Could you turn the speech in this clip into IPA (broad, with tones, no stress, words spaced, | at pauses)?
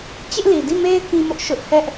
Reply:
t͡ɕɪ˦ʔli˨di˦˨me˦ɪ̯ kĩ˦mʊ˦ʔ ʃʊ˦ʔ hɛ˦ʔ